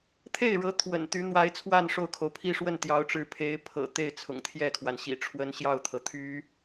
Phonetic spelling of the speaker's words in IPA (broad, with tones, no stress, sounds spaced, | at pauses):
t̪ʰ e˥˩ ɪ̯ ɻ ɤ˧˥ t̪ʰ w ə̰˨˩ n t̪ y˧˥ n̪ w a˧˥ ɪ̯ t͡sʰ w a˥˧ n ʂ o˥˩ ʊ̯ kʰ o˩ ʊ̯ pʰ i˥ ʂ w ə˥˩ n t̪ j ɑ˧˥ ʊ̯ ʈ͡ʂ ɻ̩˧˥ pʰ e˧˥ ɪ̯ pʰ ɤ̰˨˩ t̪ e˥˩ ɪ̯ t͡sʰ ʊ̰˨˩ ŋ t̪ʰ j ɛ˥˩ kʰ w a˩ n ɕ ḭ˨˩ ʈ͡ʂʰ w ə˥ n ɕ j ɑ˥˩ ʊ̯ t̪ʰ ɤ˩ t̪ʰ y˧˥